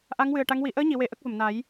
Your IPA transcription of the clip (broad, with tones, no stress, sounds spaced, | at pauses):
ʔ a˧˥ ŋ w ɨ˨˩ ə̯ ʈ a˧˥ ŋ w i˨˩˦ ʔ əː˧˥ ɲ i˨˩˨ w e˨˩˨ ʔ ə˦˥ k̚ v ə˨˩˨ m n a˨˩˦ j